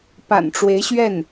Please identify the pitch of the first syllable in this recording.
low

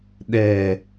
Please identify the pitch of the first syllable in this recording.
low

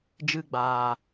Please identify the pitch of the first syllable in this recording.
high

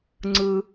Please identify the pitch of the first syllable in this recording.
high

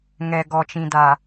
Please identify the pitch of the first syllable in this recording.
low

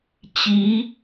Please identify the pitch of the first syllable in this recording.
rising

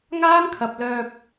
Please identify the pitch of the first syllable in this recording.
high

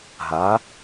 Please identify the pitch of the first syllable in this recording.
rising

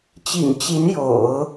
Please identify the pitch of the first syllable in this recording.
low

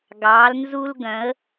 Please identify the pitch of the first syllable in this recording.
rising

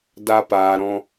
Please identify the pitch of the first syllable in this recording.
high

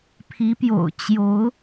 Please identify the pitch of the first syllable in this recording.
rising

